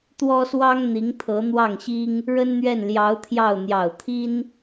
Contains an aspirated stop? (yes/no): yes